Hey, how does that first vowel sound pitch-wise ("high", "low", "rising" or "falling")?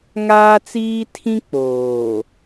high